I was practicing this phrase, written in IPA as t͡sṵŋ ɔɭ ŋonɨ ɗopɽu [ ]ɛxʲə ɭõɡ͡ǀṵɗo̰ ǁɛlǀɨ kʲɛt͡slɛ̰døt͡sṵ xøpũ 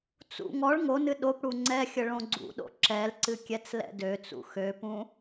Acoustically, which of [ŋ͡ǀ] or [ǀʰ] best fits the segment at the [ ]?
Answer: ŋ͡ǀ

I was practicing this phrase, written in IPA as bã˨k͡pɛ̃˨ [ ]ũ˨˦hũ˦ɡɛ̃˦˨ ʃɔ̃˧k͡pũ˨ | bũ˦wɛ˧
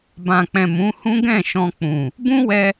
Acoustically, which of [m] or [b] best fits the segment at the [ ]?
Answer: m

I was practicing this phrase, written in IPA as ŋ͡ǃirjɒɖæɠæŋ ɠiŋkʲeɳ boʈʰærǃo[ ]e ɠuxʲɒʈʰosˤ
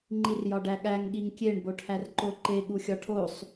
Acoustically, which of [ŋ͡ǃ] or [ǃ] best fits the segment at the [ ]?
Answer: ǃ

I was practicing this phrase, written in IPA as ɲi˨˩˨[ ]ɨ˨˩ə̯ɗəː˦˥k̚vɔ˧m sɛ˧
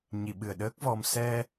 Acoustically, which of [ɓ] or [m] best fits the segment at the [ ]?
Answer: ɓ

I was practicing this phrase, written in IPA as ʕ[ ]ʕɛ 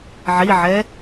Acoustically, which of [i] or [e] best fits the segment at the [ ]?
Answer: i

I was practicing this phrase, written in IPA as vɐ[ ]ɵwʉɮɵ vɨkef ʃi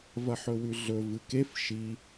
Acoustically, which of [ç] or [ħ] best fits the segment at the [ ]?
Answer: ħ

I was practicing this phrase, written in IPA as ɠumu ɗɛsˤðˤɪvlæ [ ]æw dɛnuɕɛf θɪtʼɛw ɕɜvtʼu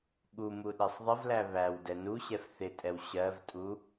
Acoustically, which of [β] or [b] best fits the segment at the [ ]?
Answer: β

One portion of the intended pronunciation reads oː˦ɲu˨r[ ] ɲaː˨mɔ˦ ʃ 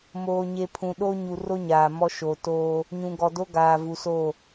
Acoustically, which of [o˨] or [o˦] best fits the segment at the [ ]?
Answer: o˦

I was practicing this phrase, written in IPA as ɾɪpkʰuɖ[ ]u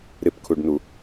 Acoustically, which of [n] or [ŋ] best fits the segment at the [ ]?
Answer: n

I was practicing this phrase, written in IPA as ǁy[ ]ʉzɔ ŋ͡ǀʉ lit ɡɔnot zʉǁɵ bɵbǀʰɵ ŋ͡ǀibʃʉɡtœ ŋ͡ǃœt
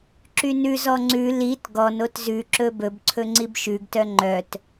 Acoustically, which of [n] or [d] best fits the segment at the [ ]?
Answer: n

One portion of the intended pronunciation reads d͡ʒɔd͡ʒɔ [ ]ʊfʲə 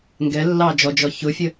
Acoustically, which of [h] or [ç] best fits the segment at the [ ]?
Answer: ç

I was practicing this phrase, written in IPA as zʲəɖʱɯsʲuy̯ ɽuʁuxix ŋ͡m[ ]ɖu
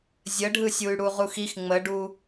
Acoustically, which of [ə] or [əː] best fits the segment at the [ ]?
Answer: ə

